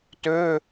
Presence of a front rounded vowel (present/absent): present